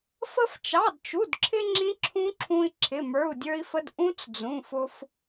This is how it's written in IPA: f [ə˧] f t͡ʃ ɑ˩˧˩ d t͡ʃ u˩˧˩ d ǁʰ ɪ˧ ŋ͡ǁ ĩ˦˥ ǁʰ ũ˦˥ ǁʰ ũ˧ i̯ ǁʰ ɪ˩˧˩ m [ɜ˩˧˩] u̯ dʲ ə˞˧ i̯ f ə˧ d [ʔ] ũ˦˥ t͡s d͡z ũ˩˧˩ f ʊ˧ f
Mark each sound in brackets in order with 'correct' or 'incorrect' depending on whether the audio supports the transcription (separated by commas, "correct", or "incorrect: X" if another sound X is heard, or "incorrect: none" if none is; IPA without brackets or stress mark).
correct, incorrect: ə˞˩˧˩, correct